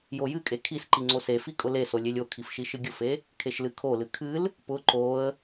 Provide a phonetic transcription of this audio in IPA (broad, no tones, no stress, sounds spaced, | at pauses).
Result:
j o j ɨ kʼ e kʰ i s ǃ i ŋ͡ǀ o s e f i kʼ ʊ l e s o lʲ e lʲ o kʰ i f ʃ i ʃ ɨ ɡʲ ʊ f e | kʰ e ʃ l ɨ kʰ o l ɨ kʰ ɨ l | p ʊ ǃ o ə̯